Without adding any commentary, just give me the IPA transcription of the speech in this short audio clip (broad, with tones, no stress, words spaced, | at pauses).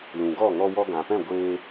lũ˨ɡɔ˦˨ ŋɔ˧wɔ˧ɡã˨pɛ̃˦˨ ɡʷeː˧